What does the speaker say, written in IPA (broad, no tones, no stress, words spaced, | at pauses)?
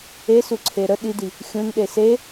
esuǀʰe ɾə ɗidi | xʲũnɗe se